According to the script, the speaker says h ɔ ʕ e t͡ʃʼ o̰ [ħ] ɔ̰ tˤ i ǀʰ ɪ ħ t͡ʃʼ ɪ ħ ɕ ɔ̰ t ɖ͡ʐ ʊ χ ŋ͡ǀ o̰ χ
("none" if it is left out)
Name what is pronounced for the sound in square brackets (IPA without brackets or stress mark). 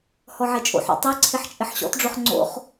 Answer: ħ